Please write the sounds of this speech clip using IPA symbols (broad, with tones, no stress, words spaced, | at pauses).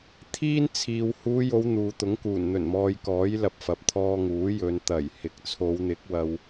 t̪ʰiː˥nt͡sʰiː˨w huː˨˧jo˨˧w n̪uː˨t̪ʊ˨˥ŋkuː˨˩n n̪ɵ˨˩nmɔː˨j kɔː˨˥jlɐ˨p̚ fɐ˨p̚t̪ʰɔː˧ŋuː˨˥jɵ˨˧n t̪ɐ˨˩jhɪ˨k̚ t͡sʰo˨˧wn̪ɪ˨˥k̚ wɐ˧w